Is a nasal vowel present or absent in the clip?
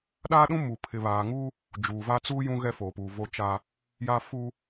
present